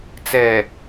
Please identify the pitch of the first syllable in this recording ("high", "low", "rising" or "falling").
low